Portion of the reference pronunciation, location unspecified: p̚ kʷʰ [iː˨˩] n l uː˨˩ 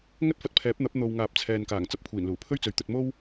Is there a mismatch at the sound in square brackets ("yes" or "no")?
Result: no